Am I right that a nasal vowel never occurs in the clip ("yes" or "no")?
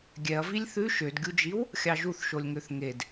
yes